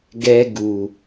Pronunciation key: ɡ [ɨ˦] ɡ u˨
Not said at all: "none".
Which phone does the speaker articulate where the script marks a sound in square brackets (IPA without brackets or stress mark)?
ɛ˦